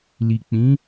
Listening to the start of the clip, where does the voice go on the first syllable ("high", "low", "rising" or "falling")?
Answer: low